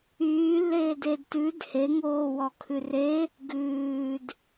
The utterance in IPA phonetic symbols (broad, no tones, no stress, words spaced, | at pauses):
yːlːeːdeːd tʉd heŋoːwɔkʰʉ re | ɡʉːd